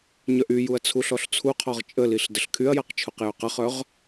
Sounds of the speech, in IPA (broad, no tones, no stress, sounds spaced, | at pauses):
ɲ œ ʔ y j u ɐ̯ t͡sʰ u ɬ ɔ ɬ t͡sʰ u qʰ ɔ ʁ t͡ʃʼ ə l i ɬ d ə ɬ kʰ y ɐ̯ j a q t͡ʃʰ u q j ø q ə χ œ ʁ